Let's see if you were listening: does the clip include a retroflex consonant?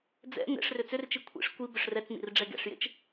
yes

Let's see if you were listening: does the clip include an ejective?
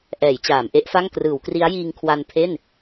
no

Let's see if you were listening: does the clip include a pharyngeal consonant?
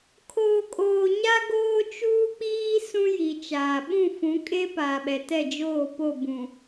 no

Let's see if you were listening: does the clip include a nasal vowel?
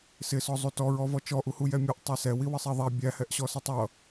no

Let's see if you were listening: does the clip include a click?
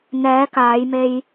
no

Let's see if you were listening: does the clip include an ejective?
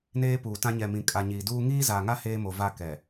yes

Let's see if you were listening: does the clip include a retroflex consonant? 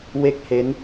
no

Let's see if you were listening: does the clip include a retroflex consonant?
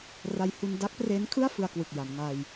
no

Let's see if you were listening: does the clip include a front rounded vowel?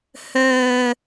yes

